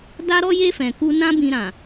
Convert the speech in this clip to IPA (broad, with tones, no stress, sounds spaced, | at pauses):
d a˦ ɾ ɔ˦ j e˦ f ɛ̃˧ k u˦ n ã˦ b ĩ˧ ɾ ã˨